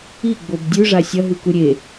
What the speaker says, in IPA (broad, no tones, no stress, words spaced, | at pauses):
iɡ͡bob dʲʉʐa sʲɐɦʉku ɾʲe